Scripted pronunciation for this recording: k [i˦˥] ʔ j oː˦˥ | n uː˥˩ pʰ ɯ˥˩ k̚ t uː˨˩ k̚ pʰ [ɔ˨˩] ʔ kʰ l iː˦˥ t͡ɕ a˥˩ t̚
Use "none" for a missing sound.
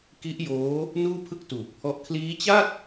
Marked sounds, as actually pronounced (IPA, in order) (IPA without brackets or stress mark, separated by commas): i˦˥, ɔ˦˥